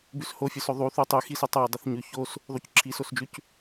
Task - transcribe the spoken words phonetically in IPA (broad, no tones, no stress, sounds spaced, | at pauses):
b ʉ s h o fʲ ɵ s ɵ ðˤ u θ u tˤ ʉ x i s ɨ tˤ a ɐ̯ dˤ ɵ θ ɲ ʉ ç o s | ðˤ u c ǁʰ i s o s d͡ʒ ʉ c